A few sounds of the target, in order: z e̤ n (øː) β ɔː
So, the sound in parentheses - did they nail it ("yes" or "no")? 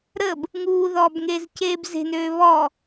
yes